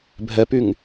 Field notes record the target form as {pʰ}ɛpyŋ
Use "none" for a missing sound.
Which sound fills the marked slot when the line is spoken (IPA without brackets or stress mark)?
bʱ